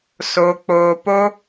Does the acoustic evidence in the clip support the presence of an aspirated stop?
no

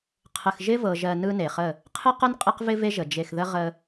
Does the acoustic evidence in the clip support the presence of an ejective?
yes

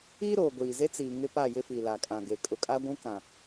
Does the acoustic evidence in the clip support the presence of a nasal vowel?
yes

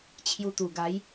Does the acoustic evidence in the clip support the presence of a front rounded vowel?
no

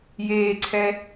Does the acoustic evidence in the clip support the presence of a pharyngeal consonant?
no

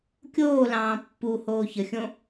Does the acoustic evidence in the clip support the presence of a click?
no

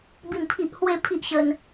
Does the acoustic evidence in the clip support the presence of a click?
no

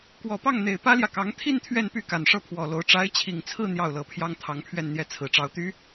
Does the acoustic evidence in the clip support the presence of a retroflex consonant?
yes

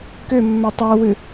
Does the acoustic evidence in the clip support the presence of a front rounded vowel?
yes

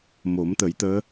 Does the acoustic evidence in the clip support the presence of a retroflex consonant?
no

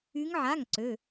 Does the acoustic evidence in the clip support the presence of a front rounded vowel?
yes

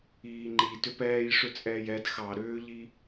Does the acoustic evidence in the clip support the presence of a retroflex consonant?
yes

